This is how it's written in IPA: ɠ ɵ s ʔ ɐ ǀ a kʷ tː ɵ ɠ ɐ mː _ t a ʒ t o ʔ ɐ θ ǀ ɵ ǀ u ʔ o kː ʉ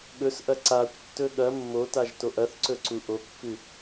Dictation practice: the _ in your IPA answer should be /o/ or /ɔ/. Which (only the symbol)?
o